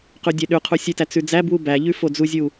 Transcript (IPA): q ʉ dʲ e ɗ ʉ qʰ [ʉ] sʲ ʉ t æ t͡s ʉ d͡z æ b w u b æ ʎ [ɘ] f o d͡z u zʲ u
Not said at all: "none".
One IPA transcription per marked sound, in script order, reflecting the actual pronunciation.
u, ʉ

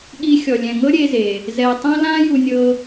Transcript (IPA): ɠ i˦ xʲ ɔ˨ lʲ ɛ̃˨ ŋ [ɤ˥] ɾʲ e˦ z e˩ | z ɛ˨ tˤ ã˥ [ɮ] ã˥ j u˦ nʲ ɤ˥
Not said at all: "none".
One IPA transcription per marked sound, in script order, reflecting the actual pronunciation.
ɤ˥, l

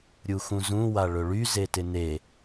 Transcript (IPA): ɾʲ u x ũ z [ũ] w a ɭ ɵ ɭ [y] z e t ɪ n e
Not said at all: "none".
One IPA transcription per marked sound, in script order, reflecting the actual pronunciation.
ũ, y

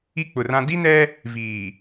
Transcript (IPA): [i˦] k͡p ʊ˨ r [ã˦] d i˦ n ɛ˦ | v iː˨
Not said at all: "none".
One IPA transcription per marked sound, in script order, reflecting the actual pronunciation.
i˦, ã˦

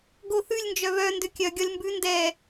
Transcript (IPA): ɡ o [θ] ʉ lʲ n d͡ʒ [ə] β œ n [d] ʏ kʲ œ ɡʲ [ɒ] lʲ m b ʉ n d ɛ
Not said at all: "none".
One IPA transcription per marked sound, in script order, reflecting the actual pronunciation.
θ, œ, d, ɒ

